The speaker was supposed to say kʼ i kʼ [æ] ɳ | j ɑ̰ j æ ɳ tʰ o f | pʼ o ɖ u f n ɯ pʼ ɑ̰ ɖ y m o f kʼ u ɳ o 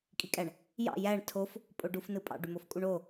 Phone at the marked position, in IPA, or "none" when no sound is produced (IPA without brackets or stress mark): æ